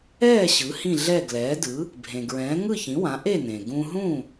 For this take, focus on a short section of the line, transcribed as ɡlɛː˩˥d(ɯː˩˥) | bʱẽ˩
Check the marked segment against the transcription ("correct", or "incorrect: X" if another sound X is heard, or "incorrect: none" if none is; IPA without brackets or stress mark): incorrect: ɯ˩˥